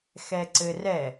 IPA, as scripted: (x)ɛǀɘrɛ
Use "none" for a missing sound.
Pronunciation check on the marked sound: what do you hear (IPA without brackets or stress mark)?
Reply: x